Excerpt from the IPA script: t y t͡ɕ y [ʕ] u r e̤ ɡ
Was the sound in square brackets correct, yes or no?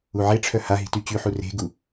no